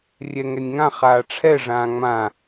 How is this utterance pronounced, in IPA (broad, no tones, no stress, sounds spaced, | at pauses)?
rʲ ɛ ŋ ɛ nʲ ŋ ã χ aː ʈ͡ʂʰ ɛ ʐ ãː ŋ͡m ã